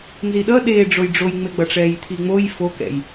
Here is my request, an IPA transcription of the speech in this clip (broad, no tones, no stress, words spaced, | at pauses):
nziɗʌ ɗeːɖ͡ʐojɖ͡ʐojŋ͡me ɡ͡bʌʈ͡ʂɛːjt̪ʰiŋ͡moj fokɛ̰j